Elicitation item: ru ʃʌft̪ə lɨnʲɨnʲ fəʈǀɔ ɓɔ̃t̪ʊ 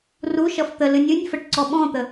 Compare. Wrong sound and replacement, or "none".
ʊ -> ə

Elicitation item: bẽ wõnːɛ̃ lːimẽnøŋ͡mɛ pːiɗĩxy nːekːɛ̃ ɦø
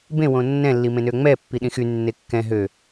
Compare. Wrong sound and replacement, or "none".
none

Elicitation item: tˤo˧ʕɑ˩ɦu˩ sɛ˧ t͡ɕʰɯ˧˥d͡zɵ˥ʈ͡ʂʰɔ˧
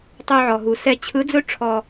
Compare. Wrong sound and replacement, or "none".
ɑ˩ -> ɔ˩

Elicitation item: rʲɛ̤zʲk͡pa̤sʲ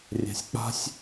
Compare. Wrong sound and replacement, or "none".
zʲ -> sʲ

